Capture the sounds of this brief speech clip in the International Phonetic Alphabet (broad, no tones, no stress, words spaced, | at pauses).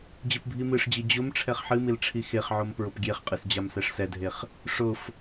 d͡ʑɨpbʱimɨʂd͡ʑi d͡ʑʊm ʈ͡ʂʰɛχħɨmil ʈ͡ʂʰixeχʕom pɹʊpɡʲeχqʼɨs d͡ʑamsɛʂsɛdʱeχ | ʂʊf